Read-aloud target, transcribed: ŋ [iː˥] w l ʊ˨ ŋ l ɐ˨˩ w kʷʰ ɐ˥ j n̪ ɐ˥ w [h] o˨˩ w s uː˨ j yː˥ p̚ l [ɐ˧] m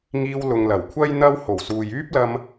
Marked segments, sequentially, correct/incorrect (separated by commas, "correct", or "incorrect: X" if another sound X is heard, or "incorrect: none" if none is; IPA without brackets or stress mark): incorrect: iː˧, correct, correct